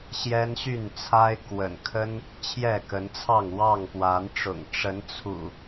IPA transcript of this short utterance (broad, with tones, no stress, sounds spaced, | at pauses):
ɕ j ɛ˦ n ɕ y˥˨ n t͡sʰ a˦ ɪ̯ k w ə̰˨˩ n kʰ ə˦ n | t͡ɕʰ j ɛ˥˨ k ə˨˦ n t͡sʰ ɑ˥˨ ŋ w ɑ˥˨ ŋ p w a˨˦ n ʈ͡ʂ ʊ̰˨˩ ŋ ʈ͡ʂ ə˨˦ n t͡sʰ ṵ˨˩